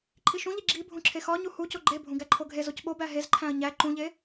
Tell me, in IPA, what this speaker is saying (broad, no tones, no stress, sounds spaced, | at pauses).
ǃʰ i ʃ ũ ʎ i ɡ͡ǁ i bʱ ũ ǁʰ e x ɒ ɲ u h u c o ɡ͡ǃ e bʱ ũ ɡ æ ǃʰ o ɡʱ e z o c ɓ o b æ ɦ e z ǃʰ æ̃ ɐ̯ ɲ æ ǃ ũ ʎ e